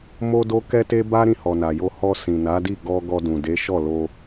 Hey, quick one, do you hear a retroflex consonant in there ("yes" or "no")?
no